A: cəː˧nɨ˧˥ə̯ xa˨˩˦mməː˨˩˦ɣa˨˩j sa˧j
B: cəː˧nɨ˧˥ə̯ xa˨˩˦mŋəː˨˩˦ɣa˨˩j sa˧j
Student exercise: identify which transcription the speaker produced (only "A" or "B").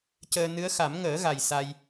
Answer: B